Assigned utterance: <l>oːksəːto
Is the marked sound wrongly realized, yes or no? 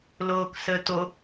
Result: no